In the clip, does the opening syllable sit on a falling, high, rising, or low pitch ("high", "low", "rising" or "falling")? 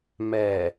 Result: low